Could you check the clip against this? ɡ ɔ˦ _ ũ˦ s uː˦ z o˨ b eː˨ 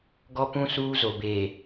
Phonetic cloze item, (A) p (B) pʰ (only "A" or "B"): A